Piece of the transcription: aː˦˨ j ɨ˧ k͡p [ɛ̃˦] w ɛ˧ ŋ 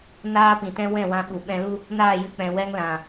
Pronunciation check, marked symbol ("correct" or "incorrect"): incorrect